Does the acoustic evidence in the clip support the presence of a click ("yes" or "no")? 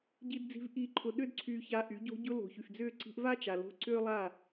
yes